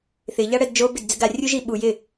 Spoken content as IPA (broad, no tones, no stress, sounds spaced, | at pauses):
θ ɪ ʎ a ɽ ɛ d d͡ʒ o b ɪ d d͡z ɪ ɡ a rʲ u ʒ i ɓ u j ɪ